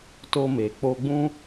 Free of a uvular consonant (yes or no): yes